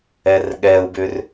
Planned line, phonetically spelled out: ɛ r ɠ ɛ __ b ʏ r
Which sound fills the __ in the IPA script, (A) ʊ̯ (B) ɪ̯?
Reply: A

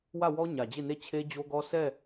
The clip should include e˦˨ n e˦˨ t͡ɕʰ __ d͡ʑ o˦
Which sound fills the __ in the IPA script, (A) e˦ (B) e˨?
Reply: A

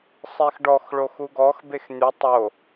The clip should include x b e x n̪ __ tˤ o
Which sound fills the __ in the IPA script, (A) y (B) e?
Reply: A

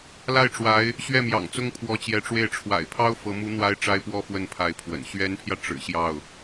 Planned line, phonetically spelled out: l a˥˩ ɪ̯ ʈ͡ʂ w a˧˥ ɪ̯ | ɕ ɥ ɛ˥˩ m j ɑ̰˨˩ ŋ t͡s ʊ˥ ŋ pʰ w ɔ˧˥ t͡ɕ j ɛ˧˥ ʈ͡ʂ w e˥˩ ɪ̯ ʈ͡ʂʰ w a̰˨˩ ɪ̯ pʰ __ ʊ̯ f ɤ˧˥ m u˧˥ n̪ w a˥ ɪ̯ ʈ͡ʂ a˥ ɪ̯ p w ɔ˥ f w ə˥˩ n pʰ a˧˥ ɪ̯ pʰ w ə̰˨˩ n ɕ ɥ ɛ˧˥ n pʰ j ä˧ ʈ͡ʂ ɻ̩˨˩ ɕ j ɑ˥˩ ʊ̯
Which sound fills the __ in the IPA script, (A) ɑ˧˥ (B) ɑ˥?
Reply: B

